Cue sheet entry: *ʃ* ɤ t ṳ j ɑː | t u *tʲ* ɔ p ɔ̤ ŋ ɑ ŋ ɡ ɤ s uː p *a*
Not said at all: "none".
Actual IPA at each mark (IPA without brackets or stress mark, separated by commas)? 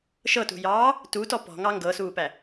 ʃ, t, æ